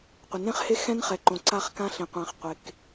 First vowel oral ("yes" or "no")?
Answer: yes